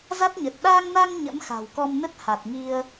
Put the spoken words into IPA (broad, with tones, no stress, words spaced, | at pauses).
za˦˥t̚ɲə˨˩t̚ ɗa˧ŋna˧ŋ ɲə̰˧˥mxa̤˨˩wkɔ˧mnə˦˥t̚ ha˨˩t̚ŋi˧ə̯